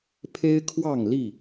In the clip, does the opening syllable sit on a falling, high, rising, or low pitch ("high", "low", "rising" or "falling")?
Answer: high